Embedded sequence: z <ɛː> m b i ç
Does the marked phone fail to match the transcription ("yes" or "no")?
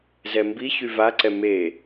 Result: yes